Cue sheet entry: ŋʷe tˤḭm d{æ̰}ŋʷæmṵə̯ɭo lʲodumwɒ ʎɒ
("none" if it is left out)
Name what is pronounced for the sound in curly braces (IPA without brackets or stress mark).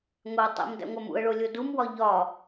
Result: æ̰